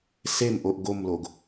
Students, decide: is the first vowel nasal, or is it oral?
oral